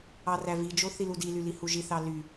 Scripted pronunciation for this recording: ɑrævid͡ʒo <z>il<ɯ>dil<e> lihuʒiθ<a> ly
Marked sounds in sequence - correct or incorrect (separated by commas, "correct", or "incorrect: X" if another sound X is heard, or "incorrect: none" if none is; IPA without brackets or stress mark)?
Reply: incorrect: θ, incorrect: u, incorrect: y, incorrect: ɑ